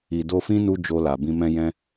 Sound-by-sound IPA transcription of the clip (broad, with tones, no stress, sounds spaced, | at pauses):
i˨ d o˧ f ĩ˦ n u˦ d͡ʒ o˧ l a˨ b ĩ˧ m ɛ̃˧ j ɛ̃˧